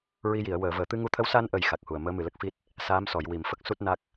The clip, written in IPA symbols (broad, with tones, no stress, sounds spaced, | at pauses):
ɹ i˧ j i˨˩˨ ə̯ w əː˨˩˨ v əː˨˩˨ t̪ ɨ˧ ŋ u˧ t̪ʰ ə˧˥ w s a˧ n ʔ ə˨˩ j x a˨˩ k̚ h u˨˩ ə̯ m əː˧˥ m ɨ˨˩ l ə˦˥ k̚ f i˦˥ t̚ | s aː˧˥ m s ɔ˨˩˨ j w i˨˩˨ m f ə˦˥ k̚ s u˦˥ t̚ n a˦˥ k̚